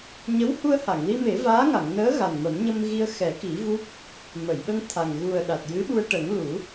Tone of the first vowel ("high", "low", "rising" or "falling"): rising